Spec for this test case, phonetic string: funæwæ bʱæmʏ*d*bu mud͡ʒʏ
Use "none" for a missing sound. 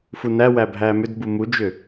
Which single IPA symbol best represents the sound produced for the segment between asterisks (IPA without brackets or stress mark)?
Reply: d